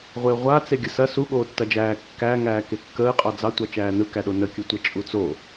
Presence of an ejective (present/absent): present